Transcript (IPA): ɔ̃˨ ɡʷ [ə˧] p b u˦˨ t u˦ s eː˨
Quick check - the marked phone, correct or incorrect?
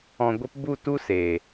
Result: correct